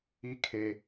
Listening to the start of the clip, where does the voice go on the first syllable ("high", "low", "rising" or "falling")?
high